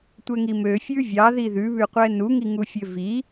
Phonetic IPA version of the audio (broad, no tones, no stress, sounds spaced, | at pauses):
tʷ ɛ ŋ i m ø fʲ ʉ vʲ ɑ ð i ð ʉ β ʉ qʷ ɛ n u ŋ i ŋ u fʲ ø v i